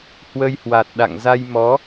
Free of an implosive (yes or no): no